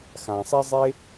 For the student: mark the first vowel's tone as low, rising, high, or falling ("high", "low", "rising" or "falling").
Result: low